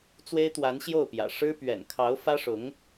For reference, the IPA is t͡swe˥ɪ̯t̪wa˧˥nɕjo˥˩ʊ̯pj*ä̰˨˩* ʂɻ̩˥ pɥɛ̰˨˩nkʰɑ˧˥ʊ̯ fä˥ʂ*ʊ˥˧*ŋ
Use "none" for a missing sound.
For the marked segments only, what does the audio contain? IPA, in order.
ä̰˨˩, ʊ˧˥

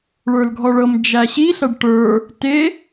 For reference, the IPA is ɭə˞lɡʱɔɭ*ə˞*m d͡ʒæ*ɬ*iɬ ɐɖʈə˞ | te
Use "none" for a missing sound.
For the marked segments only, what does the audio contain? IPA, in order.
ɤ, ɕ

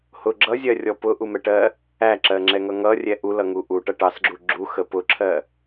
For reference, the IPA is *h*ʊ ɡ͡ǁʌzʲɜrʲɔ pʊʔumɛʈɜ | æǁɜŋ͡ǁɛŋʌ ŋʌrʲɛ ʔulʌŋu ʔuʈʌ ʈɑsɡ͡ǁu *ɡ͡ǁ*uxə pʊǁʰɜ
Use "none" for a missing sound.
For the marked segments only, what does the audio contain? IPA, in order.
h, ɡ͡ǁ

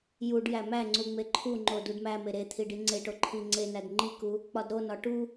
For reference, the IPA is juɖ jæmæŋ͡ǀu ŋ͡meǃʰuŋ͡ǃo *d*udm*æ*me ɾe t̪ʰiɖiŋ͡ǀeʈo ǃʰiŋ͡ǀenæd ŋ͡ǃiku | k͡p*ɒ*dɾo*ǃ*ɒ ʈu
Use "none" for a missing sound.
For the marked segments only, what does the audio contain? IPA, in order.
d, æ, ɒ, n

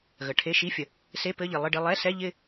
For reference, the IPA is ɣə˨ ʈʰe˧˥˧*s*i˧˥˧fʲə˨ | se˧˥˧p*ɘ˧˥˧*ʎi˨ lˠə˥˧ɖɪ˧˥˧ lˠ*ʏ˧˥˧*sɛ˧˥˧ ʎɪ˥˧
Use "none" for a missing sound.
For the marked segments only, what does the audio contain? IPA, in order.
ʃ, ɘ˧˥˧, ɛ˧˥˧

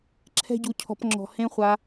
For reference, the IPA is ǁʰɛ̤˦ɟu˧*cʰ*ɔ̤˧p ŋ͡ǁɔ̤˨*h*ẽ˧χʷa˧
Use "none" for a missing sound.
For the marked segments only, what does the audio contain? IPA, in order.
cʰ, h

